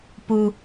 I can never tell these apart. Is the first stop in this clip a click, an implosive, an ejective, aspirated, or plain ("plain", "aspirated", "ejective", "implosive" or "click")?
plain